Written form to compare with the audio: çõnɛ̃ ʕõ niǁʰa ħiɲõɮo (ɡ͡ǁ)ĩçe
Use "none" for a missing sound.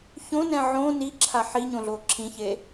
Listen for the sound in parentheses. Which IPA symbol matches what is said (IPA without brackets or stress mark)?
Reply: ǁʰ